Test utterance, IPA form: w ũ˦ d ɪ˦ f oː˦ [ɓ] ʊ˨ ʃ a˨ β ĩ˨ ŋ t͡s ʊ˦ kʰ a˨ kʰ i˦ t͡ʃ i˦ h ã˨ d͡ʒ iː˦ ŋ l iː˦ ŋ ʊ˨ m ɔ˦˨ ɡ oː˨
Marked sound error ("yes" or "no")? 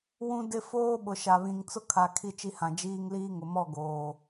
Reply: no